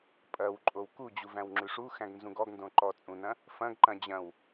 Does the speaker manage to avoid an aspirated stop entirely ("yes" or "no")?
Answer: yes